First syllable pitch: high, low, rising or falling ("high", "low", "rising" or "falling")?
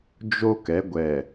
high